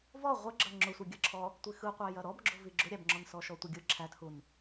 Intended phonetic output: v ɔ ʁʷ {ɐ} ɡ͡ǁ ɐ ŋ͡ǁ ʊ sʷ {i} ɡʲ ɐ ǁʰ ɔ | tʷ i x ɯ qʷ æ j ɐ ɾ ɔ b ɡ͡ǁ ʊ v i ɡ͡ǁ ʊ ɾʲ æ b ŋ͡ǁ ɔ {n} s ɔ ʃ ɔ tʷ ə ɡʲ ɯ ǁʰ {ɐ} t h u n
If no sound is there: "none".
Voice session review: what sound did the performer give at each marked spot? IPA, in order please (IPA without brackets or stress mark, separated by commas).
ə, i, n, æ